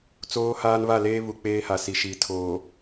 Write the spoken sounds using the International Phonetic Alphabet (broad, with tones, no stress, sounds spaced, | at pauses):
t͡s oː˦ h aː˦ n β a˦˨ l eː˦ β u˨ k͡p eː˦ h a˨ s i˨ ʃ iː˨ tʰ oː˨